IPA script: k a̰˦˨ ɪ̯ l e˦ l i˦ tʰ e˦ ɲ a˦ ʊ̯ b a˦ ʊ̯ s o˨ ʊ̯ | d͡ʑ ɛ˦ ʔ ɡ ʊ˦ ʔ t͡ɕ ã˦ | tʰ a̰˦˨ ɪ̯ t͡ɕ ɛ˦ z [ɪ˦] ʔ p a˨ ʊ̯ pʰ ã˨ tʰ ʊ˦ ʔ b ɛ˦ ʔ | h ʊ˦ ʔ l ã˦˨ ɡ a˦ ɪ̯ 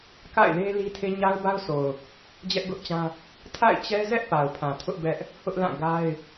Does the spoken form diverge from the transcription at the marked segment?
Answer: yes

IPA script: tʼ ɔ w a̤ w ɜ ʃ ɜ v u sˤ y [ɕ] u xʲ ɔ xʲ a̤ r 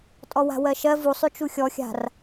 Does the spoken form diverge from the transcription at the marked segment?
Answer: yes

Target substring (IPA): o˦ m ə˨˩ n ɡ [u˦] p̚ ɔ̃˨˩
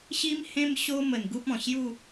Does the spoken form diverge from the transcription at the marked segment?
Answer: no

